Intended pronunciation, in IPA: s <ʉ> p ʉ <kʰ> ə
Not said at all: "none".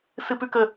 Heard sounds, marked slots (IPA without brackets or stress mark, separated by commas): ɨ, k